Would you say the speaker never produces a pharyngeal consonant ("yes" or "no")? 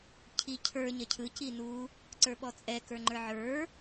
no